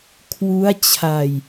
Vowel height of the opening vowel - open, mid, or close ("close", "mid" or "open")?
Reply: close